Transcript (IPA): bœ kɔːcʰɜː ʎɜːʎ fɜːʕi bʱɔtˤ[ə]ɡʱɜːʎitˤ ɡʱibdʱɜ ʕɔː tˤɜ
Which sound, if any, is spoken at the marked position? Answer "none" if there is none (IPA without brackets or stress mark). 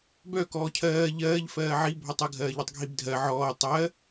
ə